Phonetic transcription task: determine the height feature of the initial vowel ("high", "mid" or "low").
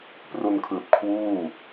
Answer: high